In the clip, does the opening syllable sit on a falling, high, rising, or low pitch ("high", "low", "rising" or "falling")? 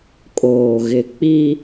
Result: low